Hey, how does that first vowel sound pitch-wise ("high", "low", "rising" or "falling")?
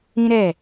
high